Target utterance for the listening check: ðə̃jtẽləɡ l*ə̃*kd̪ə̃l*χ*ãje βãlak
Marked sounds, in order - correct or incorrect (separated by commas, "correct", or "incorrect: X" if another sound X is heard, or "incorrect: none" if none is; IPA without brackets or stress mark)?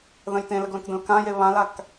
correct, incorrect: k